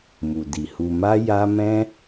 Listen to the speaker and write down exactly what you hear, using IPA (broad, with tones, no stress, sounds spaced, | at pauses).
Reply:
m u˨ d i˨ h u˨ m a˧ j a˦ m ɛ̃˦